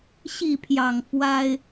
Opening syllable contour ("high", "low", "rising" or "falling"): falling